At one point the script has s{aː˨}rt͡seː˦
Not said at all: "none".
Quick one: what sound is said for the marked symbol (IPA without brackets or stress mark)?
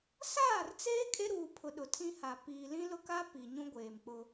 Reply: aː˦˨